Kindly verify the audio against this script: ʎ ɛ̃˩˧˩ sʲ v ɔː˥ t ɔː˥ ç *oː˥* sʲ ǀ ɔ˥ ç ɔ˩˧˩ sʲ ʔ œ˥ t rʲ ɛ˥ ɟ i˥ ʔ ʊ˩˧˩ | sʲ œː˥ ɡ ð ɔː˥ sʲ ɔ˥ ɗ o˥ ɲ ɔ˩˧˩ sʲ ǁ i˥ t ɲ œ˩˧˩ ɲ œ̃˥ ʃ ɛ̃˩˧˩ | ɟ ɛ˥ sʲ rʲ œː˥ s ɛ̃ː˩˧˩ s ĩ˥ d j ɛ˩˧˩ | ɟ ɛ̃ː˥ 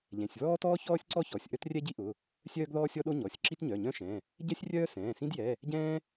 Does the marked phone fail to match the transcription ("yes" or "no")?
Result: yes